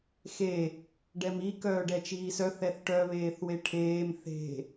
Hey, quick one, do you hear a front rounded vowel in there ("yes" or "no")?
yes